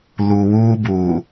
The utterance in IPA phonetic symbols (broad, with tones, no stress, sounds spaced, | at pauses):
l u˨ w uː˦ b uː˨